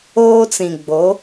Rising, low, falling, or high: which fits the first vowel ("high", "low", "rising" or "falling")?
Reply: high